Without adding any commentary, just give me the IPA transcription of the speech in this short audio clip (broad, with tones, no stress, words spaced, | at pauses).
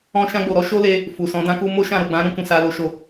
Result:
ɔ̃˧ʃã˧ɡ͡bo˨ɾɔ˨˦ ʃo˦le˧ | fu˨sɔ̃˨˦dã˦ku˦ mo˦ʃã˦˨ ɾo˨ɡ͡bã˨˦ ɾũ˧kũ˨ sa˨lo˨ʃo˨